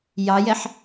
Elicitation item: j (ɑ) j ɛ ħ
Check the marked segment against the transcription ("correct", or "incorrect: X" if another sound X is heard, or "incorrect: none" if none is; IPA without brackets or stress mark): correct